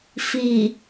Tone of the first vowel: low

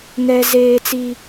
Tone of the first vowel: high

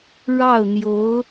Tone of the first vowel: falling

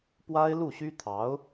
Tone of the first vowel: high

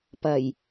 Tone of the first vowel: low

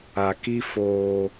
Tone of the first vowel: low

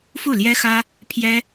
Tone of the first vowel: falling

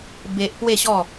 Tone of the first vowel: high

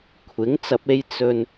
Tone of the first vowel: rising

